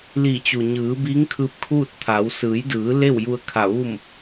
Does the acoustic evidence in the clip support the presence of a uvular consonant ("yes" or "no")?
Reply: no